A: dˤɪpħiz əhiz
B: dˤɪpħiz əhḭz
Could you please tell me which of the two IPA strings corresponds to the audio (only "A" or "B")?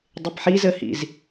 B